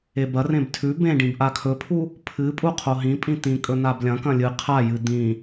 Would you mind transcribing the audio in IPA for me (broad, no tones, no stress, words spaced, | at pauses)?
ebɐrẽb tʰʉ bẽɖĩb ʔakʰɵpʰu | pʰɨ pʼuqʰoɦĩpʼĩ t̪ĩkʼɵ nablʲɐ̃kɐ̃ lʲɨ qʰajɨ d̪ĩ